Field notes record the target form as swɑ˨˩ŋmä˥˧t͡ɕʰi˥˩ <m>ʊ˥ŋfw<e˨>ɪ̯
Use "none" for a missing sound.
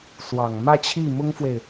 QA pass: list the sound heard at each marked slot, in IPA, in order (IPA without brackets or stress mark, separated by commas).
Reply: m, e˨